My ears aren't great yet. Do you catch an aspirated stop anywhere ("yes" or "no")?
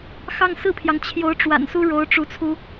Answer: yes